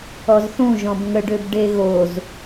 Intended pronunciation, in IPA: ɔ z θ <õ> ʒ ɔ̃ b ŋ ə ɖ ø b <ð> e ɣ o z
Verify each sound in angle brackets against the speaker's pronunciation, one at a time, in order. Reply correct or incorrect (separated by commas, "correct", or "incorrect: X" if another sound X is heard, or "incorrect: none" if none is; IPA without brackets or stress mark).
incorrect: ũ, incorrect: ɖ